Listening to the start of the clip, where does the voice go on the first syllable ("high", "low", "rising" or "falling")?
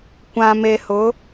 low